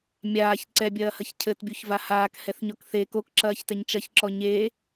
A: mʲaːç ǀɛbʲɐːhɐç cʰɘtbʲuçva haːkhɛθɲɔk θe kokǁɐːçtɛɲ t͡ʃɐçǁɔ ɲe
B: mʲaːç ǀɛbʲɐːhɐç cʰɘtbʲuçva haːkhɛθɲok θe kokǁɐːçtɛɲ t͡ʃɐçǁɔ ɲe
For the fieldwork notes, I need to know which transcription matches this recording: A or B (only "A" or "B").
A